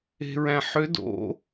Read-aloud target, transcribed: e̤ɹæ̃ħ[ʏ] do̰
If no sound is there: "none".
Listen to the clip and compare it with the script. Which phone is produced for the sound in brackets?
ʏ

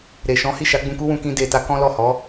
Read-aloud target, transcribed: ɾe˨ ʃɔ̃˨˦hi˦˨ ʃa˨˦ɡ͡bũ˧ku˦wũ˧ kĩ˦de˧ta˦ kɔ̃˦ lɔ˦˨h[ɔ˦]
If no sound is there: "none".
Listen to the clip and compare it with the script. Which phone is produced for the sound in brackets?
ɔ˨˦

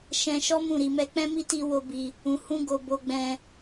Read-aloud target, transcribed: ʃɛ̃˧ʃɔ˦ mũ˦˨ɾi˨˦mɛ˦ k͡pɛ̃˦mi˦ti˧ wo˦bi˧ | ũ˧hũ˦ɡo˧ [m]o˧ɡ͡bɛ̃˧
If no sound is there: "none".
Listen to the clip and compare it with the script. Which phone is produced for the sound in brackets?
b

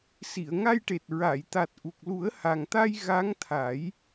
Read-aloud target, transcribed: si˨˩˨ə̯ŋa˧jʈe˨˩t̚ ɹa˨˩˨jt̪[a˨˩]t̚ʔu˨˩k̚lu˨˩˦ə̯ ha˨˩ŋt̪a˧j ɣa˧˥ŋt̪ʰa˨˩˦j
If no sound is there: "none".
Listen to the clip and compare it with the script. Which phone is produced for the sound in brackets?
a˨˩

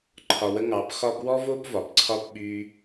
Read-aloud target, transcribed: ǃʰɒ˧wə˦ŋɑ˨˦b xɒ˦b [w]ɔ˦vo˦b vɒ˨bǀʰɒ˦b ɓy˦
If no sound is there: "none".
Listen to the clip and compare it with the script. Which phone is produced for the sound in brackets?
w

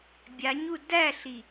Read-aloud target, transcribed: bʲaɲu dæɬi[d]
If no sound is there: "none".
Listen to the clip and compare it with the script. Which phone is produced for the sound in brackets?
none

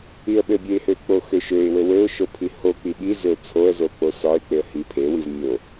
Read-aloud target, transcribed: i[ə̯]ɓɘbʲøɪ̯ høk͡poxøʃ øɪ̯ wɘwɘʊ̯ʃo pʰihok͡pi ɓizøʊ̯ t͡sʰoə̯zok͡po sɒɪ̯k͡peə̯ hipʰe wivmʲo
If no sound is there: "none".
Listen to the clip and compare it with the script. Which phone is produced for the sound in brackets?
ə̯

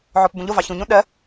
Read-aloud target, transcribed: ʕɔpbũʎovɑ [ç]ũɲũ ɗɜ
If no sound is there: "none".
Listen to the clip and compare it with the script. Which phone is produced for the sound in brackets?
ç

